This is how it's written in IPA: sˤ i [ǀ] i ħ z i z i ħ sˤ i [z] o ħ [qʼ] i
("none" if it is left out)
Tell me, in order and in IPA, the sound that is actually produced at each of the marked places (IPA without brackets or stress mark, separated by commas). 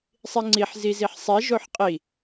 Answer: ŋ͡ǀ, ʒ, qʼ